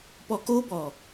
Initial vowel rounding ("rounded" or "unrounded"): rounded